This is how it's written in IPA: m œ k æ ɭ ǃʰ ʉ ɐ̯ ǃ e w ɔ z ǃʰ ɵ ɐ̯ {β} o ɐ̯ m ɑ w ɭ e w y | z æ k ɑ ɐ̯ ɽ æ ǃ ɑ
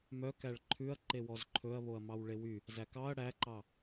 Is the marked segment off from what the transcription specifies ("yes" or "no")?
no